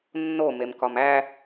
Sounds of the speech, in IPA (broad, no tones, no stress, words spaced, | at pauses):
nːomemkɒm æ